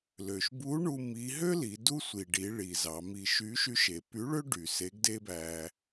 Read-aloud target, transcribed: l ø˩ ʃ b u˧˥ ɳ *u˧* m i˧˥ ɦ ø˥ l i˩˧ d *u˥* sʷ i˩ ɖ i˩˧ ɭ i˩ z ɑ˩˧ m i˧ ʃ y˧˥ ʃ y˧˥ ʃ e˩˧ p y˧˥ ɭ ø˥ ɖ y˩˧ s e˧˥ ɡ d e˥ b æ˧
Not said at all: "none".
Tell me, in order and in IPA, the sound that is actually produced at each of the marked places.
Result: u˧, u˥

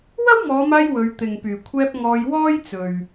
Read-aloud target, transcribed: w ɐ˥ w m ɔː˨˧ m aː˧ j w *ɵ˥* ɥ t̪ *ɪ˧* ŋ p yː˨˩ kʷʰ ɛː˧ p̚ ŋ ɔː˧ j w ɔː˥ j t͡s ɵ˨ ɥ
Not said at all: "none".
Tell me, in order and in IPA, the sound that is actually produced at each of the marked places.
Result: ɵ˨˧, ɪ˨

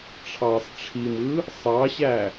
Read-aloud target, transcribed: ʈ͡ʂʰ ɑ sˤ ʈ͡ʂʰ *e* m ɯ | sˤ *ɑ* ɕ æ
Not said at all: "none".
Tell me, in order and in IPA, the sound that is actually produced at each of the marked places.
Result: i, ɑ

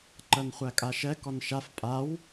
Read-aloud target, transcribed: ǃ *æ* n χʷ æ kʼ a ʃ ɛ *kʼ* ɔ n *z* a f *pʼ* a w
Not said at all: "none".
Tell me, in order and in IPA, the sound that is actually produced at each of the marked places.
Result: ɜ, k, ʃ, pʼ

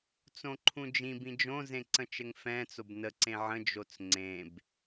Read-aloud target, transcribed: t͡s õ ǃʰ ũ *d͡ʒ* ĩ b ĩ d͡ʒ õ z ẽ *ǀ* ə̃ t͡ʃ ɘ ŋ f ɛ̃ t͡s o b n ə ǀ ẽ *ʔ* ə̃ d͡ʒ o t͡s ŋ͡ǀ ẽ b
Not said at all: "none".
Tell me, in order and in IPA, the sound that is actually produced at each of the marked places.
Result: d͡ʒ, ǀ, ʕ

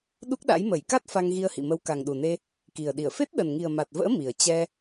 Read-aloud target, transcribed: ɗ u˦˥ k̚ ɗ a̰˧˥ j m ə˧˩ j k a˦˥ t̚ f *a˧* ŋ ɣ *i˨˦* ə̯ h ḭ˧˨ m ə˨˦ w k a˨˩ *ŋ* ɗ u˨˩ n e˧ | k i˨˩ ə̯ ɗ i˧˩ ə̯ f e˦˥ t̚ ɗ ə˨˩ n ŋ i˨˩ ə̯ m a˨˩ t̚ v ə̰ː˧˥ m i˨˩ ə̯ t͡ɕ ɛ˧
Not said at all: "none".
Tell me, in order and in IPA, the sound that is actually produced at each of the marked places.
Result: a˧, i˧, ŋ

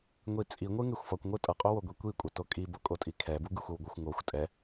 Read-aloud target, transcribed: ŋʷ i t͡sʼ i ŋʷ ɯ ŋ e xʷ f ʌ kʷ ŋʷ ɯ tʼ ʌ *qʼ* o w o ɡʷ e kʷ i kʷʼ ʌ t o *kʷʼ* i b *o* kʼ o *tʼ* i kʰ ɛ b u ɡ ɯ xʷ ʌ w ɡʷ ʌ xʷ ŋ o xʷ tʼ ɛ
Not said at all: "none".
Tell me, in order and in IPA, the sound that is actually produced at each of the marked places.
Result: qʼ, kʼ, o, tʼ

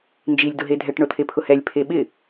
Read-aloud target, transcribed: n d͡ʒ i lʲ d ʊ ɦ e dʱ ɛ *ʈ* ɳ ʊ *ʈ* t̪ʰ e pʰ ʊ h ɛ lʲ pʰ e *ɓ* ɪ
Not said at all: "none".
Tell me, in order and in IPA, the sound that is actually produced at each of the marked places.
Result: ʈ, none, ɓ

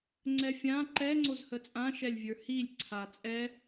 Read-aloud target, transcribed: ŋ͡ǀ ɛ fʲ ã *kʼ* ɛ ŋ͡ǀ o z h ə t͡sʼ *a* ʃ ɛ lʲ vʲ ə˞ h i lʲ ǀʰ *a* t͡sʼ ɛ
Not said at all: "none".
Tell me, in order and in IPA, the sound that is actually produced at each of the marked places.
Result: ǃ, ã, a

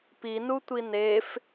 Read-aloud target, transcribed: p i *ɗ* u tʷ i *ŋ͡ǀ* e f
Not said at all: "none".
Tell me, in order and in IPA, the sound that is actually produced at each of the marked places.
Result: n, n

